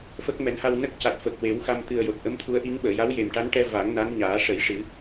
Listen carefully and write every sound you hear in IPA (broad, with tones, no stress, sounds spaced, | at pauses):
f ə˦˥ k̚ m ɛ˨˩˦ n h a˧ w n ə˦˥ k̚ c a˨˩ t̚ f əː˨˩ k̚ w e˨˩˦ w x a˧ m t̪ ɨ˨˩ ə̯ j o˨˩ t̚ ʔ ə˧˥ m t̪ʰ u˧˥ ə̯ ʔ i˧˥ ŋ ɓ əː˨˩˨ j a˧˥ w j e˨˩ m ʈ a˧˥ n ʈ ɛ˧ v a˨˩˦ ŋ n a˧˥ n ɲ aː˨˩˦ ʂ ə˨˩˦ j ʂ ɨ˨˩˦